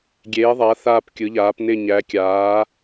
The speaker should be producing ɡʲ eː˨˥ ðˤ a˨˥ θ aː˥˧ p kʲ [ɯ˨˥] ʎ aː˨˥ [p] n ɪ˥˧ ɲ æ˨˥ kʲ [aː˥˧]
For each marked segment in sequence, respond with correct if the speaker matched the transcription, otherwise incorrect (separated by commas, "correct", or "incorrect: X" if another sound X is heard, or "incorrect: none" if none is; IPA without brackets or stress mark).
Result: correct, correct, incorrect: aː˨˥